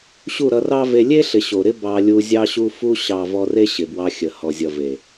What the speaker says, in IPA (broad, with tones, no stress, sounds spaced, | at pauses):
ɕ u˦˨ ɾ ʌ˧ r ɑ˦ v e˧ lʲ e˦ ɬ ɪ˨ ɕ o˨ ɾ ɪ˦ b ɑ˧ lʲ u˧ zʲ ɑ˧ ɕ u˧ f u˧ ɕ ɑ˨ v ɔ˧ r e˦ ɕ ɪ˨ b w ɑ˧ xʲ ə˨ h ɔ˨ zʲ ʌ˨ v e˨